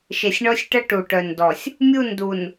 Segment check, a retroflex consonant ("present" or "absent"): present